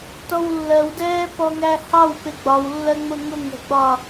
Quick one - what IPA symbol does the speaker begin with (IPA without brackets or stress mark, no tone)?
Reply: t